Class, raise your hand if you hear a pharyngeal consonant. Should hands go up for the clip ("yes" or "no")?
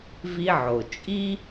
yes